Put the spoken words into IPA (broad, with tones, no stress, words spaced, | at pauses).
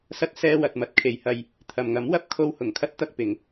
sɐ˧t̚ sɛː˧wɐ˨t̚ mɐ˨˥t̚kʰe˨˧jhɐ˧j | t̪ʰɐ˨mŋɐ˨˥mwɐ˨˥p̚ kʰo˧whʊ˨˩ŋkʰɐ˥t̚ t̪ɐ˧k̚pɪ˨˧ŋ